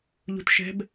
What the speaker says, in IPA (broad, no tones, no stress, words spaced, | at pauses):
ʎṳtʃɛ̤b